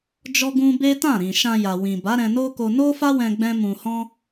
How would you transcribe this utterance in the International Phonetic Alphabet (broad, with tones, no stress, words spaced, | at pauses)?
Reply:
d͡ʒɔ˦ɡũ˦ be˦ tã˦˨ɾĩ˨ ʃã˧ja˨wĩ˨ba˨˦ ɾɛ̃˧no˦ko˧ no˦fa˦wɛ̃˧ ɡ͡bɛ̃˦mũ˧hɔ̃˦